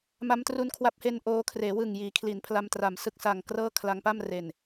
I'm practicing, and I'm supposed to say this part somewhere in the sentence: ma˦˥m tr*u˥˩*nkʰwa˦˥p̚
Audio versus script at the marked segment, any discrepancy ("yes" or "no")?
yes